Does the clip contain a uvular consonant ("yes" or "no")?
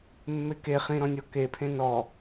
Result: yes